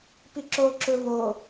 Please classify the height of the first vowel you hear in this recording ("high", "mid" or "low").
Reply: high